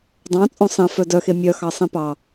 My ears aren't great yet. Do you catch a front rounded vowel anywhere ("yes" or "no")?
yes